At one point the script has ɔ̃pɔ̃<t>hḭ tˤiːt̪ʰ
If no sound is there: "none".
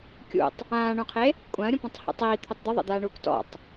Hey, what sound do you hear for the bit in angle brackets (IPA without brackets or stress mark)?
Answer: tˤ